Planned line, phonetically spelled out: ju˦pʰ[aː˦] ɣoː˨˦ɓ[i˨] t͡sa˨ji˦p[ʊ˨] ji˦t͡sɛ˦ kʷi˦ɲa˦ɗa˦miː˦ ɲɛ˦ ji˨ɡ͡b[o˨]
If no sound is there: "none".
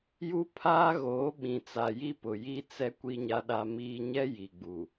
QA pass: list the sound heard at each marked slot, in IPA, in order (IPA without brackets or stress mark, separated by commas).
aː˦, ĩ˨, ʊ˨, u˨